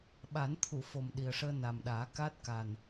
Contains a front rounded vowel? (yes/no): no